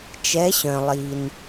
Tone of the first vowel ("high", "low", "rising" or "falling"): rising